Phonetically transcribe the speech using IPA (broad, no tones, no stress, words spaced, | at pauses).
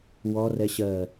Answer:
wɔ rɛɕɜ